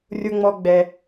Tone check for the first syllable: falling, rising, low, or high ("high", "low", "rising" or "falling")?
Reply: low